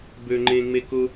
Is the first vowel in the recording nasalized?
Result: no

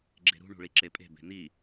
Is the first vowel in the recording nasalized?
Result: no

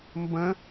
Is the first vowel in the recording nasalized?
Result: yes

